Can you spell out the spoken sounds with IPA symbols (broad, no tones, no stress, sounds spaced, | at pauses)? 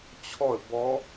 t͡ɕʰ ɔ ə̯ b ɔ